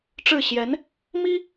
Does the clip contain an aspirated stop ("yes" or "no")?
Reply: no